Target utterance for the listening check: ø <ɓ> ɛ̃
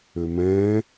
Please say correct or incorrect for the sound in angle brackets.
incorrect